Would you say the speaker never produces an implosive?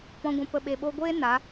no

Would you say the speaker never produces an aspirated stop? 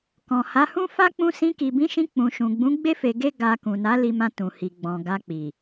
yes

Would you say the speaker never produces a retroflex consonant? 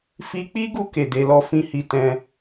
yes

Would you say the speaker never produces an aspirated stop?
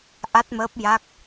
yes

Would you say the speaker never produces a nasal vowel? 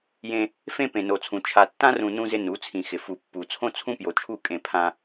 no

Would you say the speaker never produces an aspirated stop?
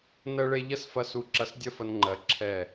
no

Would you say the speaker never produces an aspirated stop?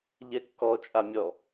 yes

